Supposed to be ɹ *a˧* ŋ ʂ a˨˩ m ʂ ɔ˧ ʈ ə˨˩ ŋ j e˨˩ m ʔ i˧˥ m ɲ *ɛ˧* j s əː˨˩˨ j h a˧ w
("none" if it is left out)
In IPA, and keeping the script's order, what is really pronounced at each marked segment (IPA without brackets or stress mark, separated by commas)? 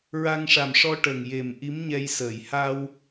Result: a˧, ɛ˧